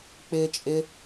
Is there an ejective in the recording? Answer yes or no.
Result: yes